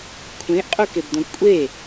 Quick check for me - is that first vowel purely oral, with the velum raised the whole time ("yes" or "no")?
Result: no